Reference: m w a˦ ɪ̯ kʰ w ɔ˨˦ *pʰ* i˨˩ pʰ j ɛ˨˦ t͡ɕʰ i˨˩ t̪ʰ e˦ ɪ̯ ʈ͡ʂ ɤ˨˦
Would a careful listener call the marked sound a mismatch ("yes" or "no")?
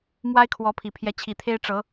no